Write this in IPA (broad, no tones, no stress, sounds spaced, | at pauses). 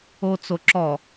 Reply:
o t͡s o ǁ ɔ